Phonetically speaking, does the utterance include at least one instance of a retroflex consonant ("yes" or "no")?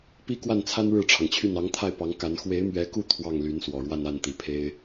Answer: yes